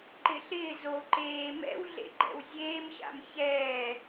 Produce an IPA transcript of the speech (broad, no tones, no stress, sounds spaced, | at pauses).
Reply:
ǃ ɪ ɬ ɪː z o ǃ eː m ɛ̰ w ɮ ḛ ɡ͡ǃ ɛ̰ w zʲ eː m ɕ a̰ m ç ɛː